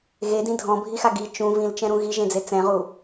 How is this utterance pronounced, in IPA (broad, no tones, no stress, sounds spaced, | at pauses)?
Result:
ɣ e d ĩ dʱ ɔ̃ bʱ i x a ɡ i t͡ʃ ũ v ĩ l t͡ʃ ɛ̃ ɾ ũ ɣ i ʒ ẽ d͡z e t͡s ɛ̃ ʁ u